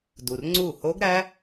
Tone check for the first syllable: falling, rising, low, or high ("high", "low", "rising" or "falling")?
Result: low